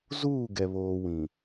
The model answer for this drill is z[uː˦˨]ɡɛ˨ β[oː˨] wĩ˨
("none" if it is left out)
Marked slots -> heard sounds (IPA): uː˦˨, oː˨

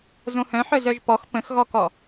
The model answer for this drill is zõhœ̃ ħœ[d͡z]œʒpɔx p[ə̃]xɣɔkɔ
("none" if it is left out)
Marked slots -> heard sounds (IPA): z, ə̃

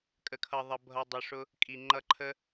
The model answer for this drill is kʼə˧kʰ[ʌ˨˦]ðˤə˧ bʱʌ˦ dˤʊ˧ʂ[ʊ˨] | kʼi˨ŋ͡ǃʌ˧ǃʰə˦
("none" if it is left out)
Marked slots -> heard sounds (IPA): ʌ˧, ʊ˦

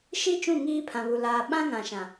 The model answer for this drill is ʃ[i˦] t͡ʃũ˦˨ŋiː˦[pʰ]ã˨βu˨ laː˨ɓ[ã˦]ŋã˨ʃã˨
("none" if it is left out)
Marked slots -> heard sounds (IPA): i˦, pʰ, ã˦

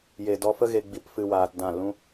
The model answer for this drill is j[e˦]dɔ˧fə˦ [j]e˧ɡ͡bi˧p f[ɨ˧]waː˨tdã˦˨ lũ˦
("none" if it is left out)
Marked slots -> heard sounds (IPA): e˨, ɣ, ɨ˧

